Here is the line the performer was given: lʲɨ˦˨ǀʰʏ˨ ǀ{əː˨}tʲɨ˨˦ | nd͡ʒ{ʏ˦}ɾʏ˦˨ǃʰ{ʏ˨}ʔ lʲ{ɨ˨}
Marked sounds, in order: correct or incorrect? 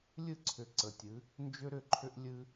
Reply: incorrect, correct, incorrect, incorrect

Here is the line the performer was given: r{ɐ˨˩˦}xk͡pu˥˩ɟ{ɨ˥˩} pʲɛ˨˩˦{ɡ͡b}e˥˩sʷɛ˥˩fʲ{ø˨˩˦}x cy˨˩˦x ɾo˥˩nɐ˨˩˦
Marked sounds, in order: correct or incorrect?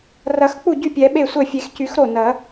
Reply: correct, incorrect, incorrect, incorrect

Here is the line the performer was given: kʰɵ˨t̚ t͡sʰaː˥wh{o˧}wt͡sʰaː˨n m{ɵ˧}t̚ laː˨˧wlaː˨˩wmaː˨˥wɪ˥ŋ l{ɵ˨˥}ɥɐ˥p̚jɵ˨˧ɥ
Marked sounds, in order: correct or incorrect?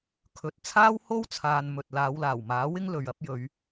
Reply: incorrect, incorrect, incorrect

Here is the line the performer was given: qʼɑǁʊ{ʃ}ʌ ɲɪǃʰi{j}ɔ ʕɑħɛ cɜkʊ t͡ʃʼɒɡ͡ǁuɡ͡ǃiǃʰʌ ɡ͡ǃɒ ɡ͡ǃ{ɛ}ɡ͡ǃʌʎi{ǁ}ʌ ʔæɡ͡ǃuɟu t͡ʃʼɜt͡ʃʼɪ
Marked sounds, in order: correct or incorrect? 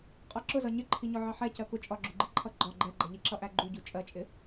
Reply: incorrect, incorrect, correct, correct

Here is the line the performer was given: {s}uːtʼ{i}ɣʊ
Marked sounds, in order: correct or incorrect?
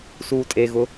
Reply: correct, incorrect

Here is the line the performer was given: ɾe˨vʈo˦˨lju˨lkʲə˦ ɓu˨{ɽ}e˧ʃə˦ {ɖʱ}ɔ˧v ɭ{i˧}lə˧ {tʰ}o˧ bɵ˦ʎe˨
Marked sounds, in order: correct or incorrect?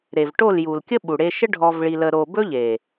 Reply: correct, correct, correct, incorrect

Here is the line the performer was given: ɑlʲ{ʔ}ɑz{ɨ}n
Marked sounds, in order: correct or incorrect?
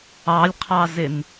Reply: incorrect, incorrect

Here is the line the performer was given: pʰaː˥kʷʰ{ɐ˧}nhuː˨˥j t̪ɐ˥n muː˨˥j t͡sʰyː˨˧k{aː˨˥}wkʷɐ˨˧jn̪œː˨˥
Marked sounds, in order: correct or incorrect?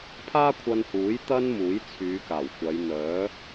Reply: correct, incorrect

